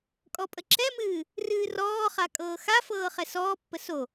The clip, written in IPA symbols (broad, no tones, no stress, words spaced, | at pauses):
kʼɔpʼəǁɛmɨː | rɨːrɔːχa kʼɤːxafɤː χɛsɔːpːə so